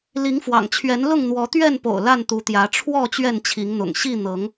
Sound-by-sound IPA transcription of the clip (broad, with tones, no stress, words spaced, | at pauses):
li˨˦ŋfwɑ̰˨˩ŋt͡ɕʰɥɛ˨˦n lʊ˥˨ŋn̪wɔ˨˦t̪ɥɛ˥˨npo̰˨˩ʊ̯ la˥˨nt̪u˨˦t̪jä˨˦ ʈ͡ʂʰwɔ˥˨ t͡ɕɥɛ˥˨nt͡ɕʰi˨˦ŋn̪ʊ̰˨˩ŋ ɕi˥˨ n̪ɤ˨˦ŋ